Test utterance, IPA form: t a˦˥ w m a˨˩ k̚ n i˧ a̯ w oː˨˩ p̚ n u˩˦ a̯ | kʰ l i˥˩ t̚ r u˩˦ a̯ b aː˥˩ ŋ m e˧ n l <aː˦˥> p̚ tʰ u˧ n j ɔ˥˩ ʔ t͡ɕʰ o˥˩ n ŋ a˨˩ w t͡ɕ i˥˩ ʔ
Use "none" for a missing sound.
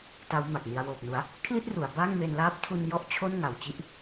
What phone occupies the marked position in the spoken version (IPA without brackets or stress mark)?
aː˦˥